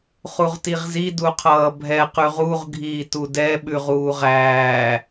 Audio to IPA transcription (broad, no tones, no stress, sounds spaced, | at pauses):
χ u ʁ t i ʁ z i d u qʰ ʌː bʱ ɛ q ʉ ʁ u ʁ ɡʱ iː t u d ɛ ɓ ʉ ʁ uː ʁ æː